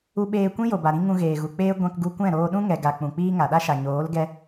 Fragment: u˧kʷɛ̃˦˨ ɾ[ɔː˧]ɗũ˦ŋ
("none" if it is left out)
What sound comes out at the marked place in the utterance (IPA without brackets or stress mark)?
oː˧